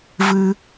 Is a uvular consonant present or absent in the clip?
absent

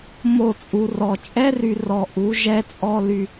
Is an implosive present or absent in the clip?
absent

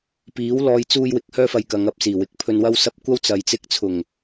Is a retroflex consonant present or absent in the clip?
absent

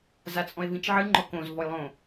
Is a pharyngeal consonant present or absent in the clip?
present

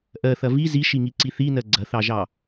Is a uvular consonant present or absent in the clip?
absent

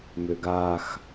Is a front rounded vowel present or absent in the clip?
present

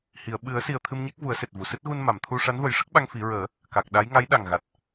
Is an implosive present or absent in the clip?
present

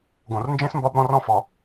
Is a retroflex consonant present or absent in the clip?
absent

